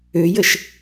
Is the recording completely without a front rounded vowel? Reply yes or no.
no